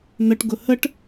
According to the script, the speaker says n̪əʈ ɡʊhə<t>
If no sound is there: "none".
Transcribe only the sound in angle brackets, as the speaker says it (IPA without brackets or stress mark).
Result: ʈ